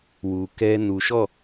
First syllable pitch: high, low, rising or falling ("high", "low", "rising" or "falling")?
low